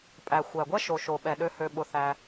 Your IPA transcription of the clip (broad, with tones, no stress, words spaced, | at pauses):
pʼæ˨xʷæ˨ɡʷɛ˦ ʃo˨ʃo˨ɓɛ˨ɗø˧ hø˧ɓʊ˧θæ˧